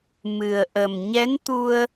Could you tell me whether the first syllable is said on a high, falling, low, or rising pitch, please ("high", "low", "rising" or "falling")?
low